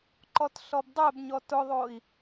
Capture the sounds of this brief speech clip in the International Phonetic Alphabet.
ǃ ɔ t ɬ ɔ b dˤ ɛ b ɲ ɔ t ʊ ðˤ o i̯

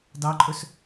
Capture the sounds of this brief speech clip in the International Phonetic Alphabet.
d ɑ ǃʼ ɵ s

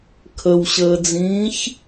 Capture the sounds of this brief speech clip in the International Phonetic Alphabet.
kʰ ə w ɕ əː d͡z ĩː ç

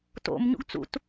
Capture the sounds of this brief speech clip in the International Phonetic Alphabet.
t o̰ m ɲ ṵ ɡ t͡s ṵ t

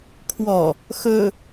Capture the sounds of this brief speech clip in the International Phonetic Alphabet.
kʰ w ɔ | x ɵ

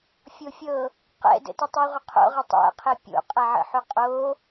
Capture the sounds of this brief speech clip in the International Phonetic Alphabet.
fʲ o fʲ ɤ | q ɛ̰ d ə̰ t ɪ tˤ u ʁʷ ə qʰ o̰ ʁ ɪ tˤ æ̰ qʰ e pʲ o̰ qʼ æ ʕ ə̰ ħ u qʼ o

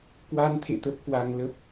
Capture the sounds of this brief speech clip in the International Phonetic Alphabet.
k w a˧ n t̪ʰ ḛ˧˨ t̪ ə˦˥ p̚ k w a˧ ŋ l ə˦˥ p̚

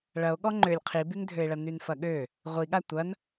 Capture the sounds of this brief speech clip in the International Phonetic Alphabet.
ɭ ɐ o̯ ɠ ɔ ŋ͡ǃ ø lʲ qʰ i b y ŋ dʱ ø e̯ ɭ ɐ n y n f ɐ ɠ ø | ʁʷ i ɠ a tʷ ɐ n

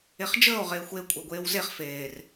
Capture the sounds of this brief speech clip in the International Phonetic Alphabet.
e χ d͡ʒ əː o̯ ʁ eː xʷ e kʷʼ e ɡʷ eː w z e χ f eː r

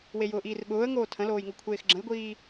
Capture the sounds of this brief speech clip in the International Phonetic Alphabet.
w e j ʊː ʔ iː r ɓ ʊː ə̯ ŋ oː tʰ ə̃ l oː j ŋ o kʷʰ eː x ɡ͡ǁ ə̃ j ɡʷ iː

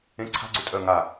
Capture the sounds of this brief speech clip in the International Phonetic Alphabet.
ẽ ǀʰ a̤ ɡ͡ǀ u tʼ œ ŋ a

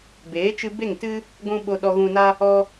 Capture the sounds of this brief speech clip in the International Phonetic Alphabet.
b eː˨˦ t͡ʃ ɨ˧ b e˦˨ ŋ t ɨ˦ | ɡʷ ũ˧ ɓ o˧ ɗ ɔ˧ ɣ ũ˧ n a˦ | ɔ˧

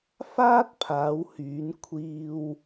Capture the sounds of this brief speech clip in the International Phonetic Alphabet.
f aː˥ t̚ pʰ aː˨˧ w h yː˨˧ n kʷʰ iː˧ w

